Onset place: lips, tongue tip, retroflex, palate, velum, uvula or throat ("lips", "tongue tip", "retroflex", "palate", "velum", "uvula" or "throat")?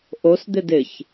throat